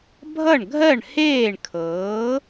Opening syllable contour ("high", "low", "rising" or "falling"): falling